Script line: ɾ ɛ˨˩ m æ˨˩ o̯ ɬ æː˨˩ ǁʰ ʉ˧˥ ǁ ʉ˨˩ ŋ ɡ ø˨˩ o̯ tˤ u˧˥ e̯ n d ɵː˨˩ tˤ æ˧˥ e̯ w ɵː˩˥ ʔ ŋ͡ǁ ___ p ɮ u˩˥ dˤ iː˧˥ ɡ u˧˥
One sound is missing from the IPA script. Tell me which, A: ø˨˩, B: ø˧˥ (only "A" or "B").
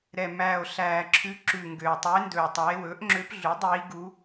B